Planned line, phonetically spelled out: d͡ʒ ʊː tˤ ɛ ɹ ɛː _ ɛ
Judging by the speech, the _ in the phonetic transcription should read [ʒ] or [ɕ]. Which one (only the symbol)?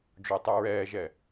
ʒ